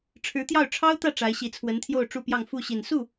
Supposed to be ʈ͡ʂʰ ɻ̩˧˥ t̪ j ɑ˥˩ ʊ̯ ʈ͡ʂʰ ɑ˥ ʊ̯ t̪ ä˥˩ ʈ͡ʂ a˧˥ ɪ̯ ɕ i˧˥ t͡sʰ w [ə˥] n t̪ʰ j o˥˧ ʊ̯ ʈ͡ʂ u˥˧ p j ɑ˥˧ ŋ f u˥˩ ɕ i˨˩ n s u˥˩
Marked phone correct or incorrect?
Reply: incorrect